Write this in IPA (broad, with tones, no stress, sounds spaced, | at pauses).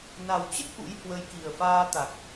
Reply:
n a˨˩ w t͡ɕ ə˦˥ t̚ ʔ ṵ˧˥ j h w ə˨˦ j k i˨˩ ə̯ f aː˧ t̪ a˨˩ k̚